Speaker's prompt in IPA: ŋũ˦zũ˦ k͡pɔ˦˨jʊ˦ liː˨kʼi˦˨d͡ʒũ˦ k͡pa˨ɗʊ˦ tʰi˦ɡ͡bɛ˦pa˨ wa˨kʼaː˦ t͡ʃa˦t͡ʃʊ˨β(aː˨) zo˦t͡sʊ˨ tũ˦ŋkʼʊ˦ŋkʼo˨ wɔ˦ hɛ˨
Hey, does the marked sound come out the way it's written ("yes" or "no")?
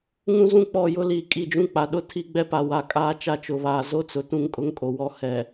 yes